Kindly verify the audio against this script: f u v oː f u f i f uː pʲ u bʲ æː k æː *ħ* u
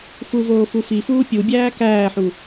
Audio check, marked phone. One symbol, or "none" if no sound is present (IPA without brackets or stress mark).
ħ